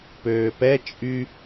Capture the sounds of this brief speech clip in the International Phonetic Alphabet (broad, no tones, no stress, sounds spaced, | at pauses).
p øː p ɛ t͡ʃʼ y